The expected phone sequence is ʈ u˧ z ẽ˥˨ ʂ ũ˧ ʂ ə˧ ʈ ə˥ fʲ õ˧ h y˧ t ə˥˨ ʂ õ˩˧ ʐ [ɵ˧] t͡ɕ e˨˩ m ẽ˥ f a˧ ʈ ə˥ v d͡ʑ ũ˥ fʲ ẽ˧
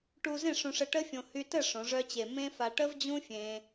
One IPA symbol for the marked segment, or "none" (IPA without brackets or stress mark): œ˧